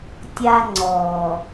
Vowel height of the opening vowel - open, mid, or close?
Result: open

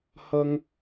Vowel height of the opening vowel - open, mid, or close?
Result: open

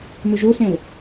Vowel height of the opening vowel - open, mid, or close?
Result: close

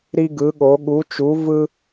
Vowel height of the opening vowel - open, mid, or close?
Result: close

